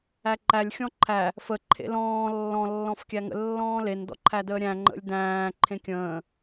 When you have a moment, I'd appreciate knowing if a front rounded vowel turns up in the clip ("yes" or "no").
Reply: no